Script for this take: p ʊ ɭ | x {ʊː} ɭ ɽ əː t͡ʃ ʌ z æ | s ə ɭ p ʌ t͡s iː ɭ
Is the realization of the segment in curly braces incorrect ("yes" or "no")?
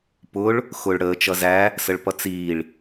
no